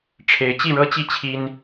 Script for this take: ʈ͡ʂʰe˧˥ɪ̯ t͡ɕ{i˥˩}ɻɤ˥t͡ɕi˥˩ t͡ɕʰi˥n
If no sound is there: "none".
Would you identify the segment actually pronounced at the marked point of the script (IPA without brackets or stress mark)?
i˥˩